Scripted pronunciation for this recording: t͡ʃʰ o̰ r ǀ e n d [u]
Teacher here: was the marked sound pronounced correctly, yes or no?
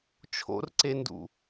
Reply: no